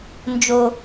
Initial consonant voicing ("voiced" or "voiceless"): voiced